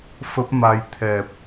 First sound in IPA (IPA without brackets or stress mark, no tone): f